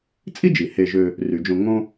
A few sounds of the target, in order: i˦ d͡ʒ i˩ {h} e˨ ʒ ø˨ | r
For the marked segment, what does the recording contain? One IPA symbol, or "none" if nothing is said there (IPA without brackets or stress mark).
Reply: h